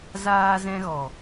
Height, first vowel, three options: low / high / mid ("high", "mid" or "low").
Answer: low